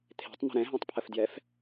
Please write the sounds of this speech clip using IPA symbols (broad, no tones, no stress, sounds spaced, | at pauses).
t̪ʰ e̤ tˤ n̪ ə̤ ɾ ɛ̃ ɦ ɛ̃ tˤ pʰ ə f d j ɛ f